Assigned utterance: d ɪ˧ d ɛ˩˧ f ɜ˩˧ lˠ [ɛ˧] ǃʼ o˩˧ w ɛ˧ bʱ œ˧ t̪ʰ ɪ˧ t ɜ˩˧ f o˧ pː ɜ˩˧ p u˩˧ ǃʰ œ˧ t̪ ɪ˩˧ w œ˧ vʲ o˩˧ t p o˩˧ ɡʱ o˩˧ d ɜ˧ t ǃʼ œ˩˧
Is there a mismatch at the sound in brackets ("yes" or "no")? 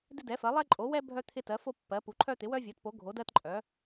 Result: no